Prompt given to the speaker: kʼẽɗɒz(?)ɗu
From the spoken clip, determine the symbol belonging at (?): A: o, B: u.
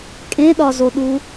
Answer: A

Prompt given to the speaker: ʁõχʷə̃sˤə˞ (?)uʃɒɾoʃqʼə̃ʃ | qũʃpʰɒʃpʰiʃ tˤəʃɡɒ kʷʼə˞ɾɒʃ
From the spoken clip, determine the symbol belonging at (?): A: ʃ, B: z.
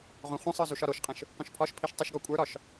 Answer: B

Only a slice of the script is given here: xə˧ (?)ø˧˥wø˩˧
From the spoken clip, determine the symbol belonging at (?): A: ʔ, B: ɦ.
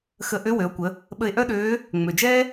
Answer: A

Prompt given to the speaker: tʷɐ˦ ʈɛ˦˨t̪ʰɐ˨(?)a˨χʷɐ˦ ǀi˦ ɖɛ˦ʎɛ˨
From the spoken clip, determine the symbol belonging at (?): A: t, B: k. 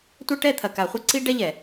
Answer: B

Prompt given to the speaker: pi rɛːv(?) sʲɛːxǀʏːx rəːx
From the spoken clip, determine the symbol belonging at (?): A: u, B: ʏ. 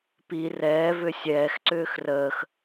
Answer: B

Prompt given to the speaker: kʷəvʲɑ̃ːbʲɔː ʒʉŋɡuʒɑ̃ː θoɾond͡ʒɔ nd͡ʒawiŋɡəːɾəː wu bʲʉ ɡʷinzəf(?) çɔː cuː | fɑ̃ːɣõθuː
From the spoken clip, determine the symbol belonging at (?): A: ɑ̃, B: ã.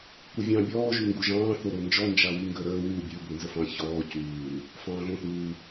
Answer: A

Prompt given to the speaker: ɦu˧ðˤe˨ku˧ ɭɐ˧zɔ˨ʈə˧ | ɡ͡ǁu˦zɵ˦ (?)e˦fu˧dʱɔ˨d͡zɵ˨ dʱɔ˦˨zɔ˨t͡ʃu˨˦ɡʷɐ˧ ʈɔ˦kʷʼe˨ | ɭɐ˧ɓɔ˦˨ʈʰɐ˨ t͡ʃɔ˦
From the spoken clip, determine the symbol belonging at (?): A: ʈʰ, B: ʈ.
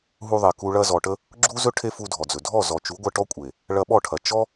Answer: A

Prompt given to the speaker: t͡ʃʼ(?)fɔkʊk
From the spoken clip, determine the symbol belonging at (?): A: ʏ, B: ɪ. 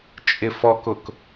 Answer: B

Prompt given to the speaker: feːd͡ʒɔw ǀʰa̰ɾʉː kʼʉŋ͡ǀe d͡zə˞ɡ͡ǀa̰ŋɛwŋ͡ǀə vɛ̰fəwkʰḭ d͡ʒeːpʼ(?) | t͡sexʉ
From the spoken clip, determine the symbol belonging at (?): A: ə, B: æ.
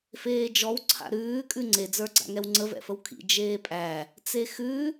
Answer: B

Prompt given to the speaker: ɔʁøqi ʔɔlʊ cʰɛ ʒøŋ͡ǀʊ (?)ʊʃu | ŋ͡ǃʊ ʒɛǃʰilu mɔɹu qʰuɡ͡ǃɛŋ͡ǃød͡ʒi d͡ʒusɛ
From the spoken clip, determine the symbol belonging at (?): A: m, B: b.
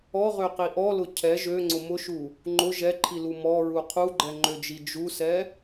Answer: A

